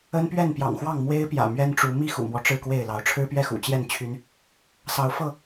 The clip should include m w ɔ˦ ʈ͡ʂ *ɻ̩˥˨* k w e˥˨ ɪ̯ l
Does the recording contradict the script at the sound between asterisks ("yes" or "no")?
no